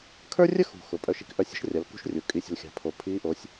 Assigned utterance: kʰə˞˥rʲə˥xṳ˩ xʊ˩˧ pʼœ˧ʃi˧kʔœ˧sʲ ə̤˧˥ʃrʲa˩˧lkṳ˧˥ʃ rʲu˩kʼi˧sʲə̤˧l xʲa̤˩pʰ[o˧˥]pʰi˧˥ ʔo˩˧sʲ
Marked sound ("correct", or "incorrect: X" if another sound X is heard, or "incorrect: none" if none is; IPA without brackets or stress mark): incorrect: o˩